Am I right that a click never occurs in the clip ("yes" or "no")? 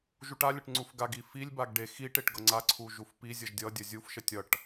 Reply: no